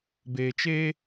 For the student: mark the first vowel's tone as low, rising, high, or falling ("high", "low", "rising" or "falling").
low